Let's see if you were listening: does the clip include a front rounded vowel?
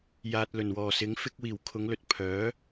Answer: yes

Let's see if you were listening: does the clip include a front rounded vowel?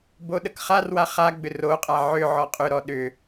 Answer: yes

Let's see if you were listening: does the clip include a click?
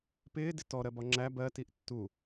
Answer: yes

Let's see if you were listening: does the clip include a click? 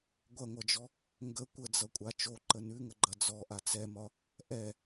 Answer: yes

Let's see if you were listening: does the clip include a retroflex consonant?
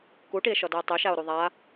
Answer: yes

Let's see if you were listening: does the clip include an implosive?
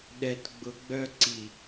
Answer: yes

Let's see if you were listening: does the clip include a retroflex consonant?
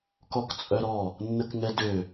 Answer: no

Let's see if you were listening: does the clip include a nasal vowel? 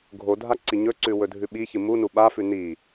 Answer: no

